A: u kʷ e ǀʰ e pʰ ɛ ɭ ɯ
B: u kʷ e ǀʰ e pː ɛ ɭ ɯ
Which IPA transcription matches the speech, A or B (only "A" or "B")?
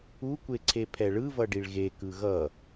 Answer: A